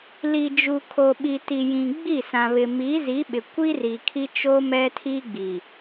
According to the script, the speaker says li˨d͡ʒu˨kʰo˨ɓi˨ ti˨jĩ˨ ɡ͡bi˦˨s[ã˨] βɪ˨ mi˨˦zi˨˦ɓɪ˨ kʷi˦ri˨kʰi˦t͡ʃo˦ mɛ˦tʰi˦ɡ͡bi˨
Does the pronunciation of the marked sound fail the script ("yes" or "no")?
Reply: no